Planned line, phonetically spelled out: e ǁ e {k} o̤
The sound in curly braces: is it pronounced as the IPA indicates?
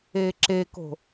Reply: yes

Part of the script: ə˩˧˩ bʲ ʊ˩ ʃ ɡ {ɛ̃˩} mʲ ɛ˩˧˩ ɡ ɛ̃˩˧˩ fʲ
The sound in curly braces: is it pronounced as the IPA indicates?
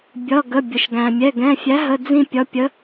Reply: no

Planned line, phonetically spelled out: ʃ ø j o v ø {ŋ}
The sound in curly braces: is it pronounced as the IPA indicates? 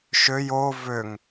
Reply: yes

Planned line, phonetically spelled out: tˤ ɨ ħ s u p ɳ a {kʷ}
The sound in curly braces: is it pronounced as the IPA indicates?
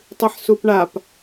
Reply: no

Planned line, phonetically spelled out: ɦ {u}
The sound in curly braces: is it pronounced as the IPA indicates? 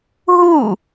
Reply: yes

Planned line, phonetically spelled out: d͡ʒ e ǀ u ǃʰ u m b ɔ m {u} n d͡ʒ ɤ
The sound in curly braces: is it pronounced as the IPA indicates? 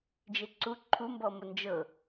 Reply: no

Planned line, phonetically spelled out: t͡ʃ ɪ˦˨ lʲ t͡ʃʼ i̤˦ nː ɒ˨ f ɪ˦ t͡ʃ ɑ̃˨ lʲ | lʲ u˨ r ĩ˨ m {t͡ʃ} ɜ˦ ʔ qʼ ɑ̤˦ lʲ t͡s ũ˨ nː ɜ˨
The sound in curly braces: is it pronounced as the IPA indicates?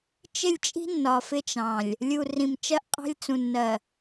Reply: yes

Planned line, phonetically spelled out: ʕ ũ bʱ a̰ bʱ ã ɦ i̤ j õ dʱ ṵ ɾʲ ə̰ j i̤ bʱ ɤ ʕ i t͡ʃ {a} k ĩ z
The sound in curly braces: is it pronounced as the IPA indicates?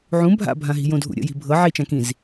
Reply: no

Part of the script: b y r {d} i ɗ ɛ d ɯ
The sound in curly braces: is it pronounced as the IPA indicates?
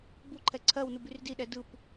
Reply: yes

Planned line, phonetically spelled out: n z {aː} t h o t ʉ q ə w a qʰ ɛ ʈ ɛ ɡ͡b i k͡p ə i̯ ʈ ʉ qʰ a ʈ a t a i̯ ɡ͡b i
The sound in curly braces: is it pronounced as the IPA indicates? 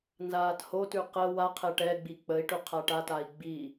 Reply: yes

